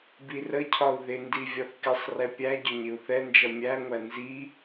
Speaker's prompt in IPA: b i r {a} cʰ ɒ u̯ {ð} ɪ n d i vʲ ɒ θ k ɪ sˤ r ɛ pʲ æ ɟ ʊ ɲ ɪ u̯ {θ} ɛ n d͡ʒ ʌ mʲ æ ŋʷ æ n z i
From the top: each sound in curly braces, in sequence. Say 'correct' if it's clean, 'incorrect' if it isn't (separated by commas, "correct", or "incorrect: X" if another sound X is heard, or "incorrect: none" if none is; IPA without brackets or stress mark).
incorrect: ə, correct, correct